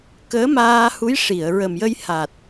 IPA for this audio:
k əː˧˥ m aː˧ h u˧˥ j ʂ i˨˩˨ ə̯ ɹ ə˨˩ m j ə˧ j h a˨˩ t̚

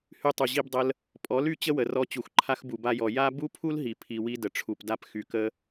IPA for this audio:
h y˧ tˤ u˨ ʑ i˧ b dˤ ə˧ l | pʼ ɔ˨˦ l y˧ t͡ɕ ə˦ w ə˨ r ɔ˧ t͡ɕ u˨ x ǃʰ a˧ x b u˨ b a˧ j ɔ˨ j a˦ b u˦ pʰ u˦ l ɦ i˨ pʰ i˨ w i˧ d ə˨ ʈ͡ʂʰ u˨ p d a˧ p x y˨ k ə˧

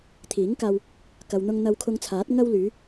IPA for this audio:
t̪ʰ iː˨˥ ŋ k aː˧ w | k ɐ˨ w n̪ ʊ˧ ŋ n̪ ɐ˧ w kʰ ʊ˧ ŋ t͡sʰ aː˨˥ t̚ ŋ ɐ˧ w l yː˨˧

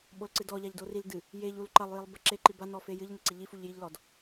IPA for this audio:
ɓ o l ǀ ɨ d ɔ ʎ a ʎ d o r i l d ɨ | j e ʎ u l ǃ ɐ lˠ j i lˠ b ɐ ǁ e ǃ i b a n ɔ f e j ɨ ʎ n ɐ ǀ i ʎ i f u ʎ j i ʎ l ɔ d

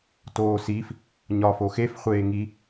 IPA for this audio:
t oː s i f | ɲ ɒː f o x e f χʷ eː ŋ i

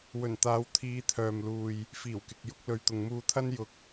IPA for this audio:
w ɵ˨˩ n t̪ aː˨˧ w t̪ʰ iː˨˧ t̪ʰ œː˨ m l uː˨ j | f iː˨˩ w k ɪ˨ k̚ j ʊ˧ k̚ l ɵ˨ ɥ t̪ ʊ˨ ŋ m uː˧ t̪ʰ ɐ˥ n j ʊ˧ k̚

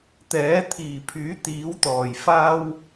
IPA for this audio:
t̪ ɛː˨˥ t̪ʰ iː˨˩ pʰ yː˨˥ t̪ iː˨˥ w t̪ ɔː˨˩ j f aː˥ w

